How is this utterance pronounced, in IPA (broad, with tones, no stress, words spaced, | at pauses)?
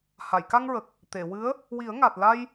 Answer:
ha˨˩˨jka˧ŋɹə˨˩k̚ | t̪e˨˩˨wɨ˧˥ə̯ | wi˨˩˦ə̯ŋa˨˩t̚ la˧j